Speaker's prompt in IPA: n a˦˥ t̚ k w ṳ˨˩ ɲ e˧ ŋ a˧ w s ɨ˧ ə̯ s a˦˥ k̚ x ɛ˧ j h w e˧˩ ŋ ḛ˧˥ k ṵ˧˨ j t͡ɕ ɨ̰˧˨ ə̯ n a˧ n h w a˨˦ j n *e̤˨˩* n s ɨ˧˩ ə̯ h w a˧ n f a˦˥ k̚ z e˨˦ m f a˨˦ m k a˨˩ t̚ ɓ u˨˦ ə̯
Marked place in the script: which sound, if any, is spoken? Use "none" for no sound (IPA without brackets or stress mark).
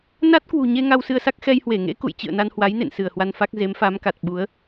ḛ˧˨